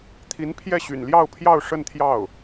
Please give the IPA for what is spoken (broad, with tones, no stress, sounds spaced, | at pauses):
t̪ʰ i˧˥ n pʰ j ɛ˥˩ ɕ y̰˨˩ n l j ɑ˥˧ ʊ̯ pʰ j ɑ˥˧ ʊ̯ ʂ ə˥˧ n t̪ʰ j ɑ˥˩ ʊ̯